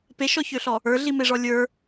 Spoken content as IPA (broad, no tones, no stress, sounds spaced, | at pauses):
p e ʃ ɔ ç ø ɬ ɔ | ə˞ ɮ i m e ʐ ɔ lʲ ə˞